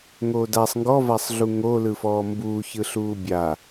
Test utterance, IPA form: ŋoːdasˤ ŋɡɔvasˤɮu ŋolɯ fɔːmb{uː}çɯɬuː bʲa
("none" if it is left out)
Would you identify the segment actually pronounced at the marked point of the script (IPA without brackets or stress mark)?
uː